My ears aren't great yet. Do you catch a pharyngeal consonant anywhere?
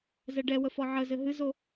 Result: yes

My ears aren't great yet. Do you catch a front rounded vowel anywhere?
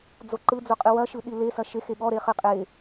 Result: no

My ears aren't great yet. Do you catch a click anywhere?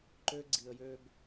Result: yes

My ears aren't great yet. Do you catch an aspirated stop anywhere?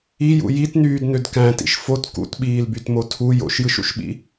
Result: yes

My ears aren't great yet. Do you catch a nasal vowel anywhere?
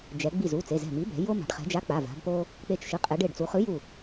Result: no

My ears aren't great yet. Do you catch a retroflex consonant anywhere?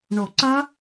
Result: yes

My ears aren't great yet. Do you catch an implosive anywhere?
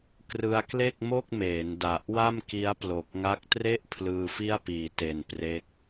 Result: no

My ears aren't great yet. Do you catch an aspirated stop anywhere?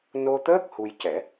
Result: no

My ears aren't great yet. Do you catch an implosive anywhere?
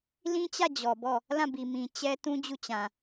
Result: no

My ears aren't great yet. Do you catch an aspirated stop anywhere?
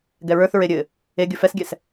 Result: no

